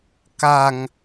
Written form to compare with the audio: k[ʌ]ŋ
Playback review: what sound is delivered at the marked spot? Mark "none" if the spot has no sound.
a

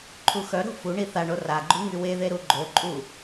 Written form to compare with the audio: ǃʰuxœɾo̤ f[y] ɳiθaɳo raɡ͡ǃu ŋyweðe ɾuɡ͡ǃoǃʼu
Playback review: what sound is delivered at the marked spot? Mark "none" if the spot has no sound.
u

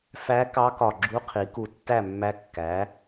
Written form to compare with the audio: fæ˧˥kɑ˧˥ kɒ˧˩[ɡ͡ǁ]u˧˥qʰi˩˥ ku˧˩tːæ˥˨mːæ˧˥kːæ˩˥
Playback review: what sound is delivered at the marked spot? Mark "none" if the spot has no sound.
ɡ͡ǁ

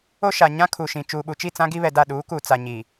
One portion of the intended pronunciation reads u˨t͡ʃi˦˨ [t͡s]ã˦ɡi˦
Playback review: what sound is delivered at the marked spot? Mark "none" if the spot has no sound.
t͡s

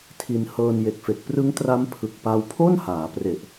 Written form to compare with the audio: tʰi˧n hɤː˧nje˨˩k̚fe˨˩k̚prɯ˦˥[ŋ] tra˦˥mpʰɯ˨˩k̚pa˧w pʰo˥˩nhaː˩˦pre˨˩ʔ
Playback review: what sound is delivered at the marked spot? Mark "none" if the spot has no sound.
ŋ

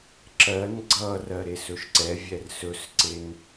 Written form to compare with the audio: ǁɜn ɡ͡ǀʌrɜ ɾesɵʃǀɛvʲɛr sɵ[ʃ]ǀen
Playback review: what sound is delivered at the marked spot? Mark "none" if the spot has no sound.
s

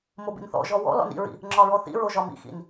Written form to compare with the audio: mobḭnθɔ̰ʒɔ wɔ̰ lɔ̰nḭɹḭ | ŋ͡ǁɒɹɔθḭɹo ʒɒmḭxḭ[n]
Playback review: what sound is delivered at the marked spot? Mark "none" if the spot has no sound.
n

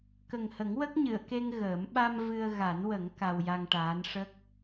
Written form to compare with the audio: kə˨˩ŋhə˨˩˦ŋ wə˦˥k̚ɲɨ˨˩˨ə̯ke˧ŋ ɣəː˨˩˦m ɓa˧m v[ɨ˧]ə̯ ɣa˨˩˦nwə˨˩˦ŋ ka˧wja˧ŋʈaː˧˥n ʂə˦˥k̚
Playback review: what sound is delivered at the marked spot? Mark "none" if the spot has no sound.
ɨ˧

